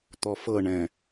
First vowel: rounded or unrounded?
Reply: rounded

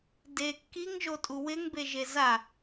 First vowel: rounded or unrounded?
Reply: unrounded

